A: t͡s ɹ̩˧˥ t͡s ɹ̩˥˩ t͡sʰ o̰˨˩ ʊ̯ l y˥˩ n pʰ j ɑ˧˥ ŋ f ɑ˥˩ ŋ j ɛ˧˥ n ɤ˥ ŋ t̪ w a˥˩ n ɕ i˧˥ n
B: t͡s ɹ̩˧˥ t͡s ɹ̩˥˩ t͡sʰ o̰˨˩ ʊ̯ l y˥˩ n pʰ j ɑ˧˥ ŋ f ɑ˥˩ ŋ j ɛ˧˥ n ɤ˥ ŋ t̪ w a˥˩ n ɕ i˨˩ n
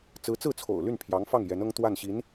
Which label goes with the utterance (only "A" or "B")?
A